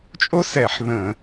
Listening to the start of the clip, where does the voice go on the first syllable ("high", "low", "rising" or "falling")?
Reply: high